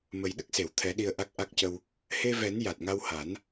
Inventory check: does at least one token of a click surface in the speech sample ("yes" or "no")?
no